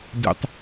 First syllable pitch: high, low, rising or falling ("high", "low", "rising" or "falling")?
low